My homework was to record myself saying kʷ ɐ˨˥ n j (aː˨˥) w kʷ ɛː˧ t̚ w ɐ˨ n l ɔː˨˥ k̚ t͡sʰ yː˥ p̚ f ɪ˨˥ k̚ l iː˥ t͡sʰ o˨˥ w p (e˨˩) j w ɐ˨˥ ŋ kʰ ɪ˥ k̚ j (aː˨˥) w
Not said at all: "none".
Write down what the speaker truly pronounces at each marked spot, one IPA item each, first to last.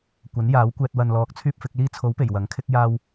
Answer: aː˨˥, e˨˩, aː˧

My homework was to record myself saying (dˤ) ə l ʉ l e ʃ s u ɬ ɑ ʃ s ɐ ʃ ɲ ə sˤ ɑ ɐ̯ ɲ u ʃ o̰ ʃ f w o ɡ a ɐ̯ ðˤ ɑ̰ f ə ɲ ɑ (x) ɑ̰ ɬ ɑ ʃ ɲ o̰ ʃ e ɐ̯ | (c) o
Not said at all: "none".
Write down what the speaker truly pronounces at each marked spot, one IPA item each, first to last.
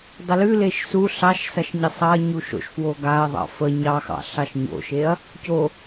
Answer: dˤ, x, c

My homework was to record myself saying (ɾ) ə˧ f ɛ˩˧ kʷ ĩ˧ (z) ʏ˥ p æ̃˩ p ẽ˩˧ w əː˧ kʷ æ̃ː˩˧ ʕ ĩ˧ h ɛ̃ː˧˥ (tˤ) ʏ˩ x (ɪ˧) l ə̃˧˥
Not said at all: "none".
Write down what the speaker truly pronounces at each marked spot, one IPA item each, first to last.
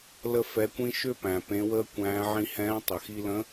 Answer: l, ʃ, tˤ, i˧

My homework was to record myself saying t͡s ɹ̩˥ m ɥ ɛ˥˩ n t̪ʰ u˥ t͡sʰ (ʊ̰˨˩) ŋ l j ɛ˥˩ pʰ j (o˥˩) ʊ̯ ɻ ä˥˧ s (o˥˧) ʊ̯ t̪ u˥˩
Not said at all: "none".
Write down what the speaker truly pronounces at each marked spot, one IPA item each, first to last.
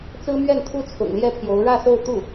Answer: ʊ̰˨˩, o˧˥, o˥˧

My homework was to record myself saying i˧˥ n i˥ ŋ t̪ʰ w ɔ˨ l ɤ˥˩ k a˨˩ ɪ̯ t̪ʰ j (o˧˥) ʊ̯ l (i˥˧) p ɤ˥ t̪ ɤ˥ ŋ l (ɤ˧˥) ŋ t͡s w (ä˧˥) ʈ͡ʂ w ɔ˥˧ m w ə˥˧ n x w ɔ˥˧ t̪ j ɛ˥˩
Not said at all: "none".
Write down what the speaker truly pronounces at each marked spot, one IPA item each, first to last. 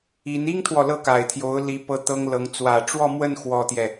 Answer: o˧˥, i˧˥, ɤ˧˥, ä˨˩

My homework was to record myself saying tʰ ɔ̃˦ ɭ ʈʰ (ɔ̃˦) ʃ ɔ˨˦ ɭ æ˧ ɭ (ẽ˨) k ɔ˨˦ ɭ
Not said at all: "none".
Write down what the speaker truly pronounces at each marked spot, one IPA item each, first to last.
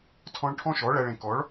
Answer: ɔ̃˦, ẽ˨

